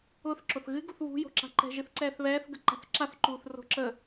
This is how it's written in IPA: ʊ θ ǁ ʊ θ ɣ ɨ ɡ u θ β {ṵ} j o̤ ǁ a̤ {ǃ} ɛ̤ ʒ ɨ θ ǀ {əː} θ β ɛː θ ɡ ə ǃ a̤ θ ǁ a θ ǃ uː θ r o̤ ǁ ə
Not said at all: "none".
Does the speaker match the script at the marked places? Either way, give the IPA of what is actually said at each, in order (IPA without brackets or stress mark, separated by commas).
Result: ṳ, ǃ, ɛː